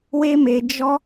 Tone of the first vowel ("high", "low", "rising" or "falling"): high